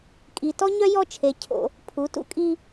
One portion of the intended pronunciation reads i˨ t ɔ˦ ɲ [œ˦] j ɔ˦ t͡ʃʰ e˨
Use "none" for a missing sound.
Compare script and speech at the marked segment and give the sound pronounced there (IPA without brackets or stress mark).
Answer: œ˦